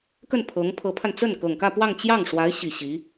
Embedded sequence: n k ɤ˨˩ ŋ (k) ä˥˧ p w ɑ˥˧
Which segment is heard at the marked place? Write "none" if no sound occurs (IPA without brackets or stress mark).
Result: k